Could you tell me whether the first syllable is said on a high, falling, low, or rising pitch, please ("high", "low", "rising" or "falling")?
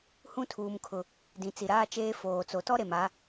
high